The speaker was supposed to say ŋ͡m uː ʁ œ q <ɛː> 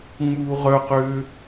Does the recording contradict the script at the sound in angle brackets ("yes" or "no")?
yes